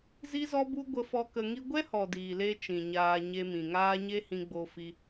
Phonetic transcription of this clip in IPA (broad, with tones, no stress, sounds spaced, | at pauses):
z i˦ z ɔ˦ b u˦ ɡʷ ə˧ f ɔ˧ k ə˧ ŋ i˧ ɡʷ ɛ˦ h ɔ˨ d iː˨ l e˧ t͡ʃ ĩ˨ ɲ aː˧ ɲ e˧ m ĩ˨ ŋ aː˦ ɲ e˦ h ĩ˧ ɡ͡b o˧ f i˧